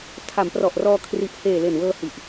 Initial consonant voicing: voiceless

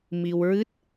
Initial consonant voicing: voiced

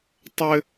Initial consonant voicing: voiceless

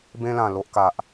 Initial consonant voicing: voiced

